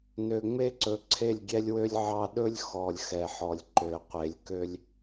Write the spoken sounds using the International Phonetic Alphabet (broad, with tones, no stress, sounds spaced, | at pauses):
n ø˨ ŋ͡m e˦ ǀ ɵ˨ ǀʰ e˦˨ lʲ ɡʲ ɛ˦ lʲ w ø˦ lʲ ʕ ɑ˦ ɗ ɵ˦ lʲ x ɔ˨ lʲ x ɛ˨ ħ ɔ˨ lʲ ǃ ø˨ qʷ e˨˦ lʲ k ø˦ lʲ